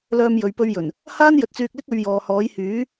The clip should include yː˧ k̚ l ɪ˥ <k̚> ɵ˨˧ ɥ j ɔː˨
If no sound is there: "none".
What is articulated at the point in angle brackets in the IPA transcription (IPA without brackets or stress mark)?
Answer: k̚